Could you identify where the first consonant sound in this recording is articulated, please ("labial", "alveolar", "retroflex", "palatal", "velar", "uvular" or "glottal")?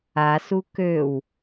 alveolar